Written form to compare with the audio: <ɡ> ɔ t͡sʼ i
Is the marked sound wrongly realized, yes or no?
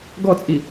no